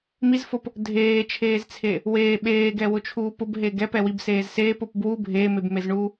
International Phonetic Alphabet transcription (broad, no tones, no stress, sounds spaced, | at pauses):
m i z f o p | dʱ eː t͡ʃʰ eː z t͡sʰ e | w eː ɓ eː ɡ ɛ w ʊ t͡ʃʰ uː p ʊ b ɦ e ɡ ɛ p ɛ w i b s eː z s eː p o p b w u bʱ eː m e b m e z ɳ uː